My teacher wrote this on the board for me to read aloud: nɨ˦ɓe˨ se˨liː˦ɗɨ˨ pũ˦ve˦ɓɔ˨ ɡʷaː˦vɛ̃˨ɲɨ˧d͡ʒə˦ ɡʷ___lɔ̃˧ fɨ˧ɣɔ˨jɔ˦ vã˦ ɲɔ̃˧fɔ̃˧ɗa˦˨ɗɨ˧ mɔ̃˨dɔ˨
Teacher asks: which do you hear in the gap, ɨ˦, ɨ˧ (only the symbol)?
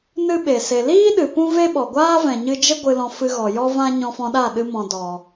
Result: ɨ˧